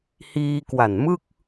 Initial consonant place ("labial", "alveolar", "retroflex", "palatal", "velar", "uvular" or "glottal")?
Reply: glottal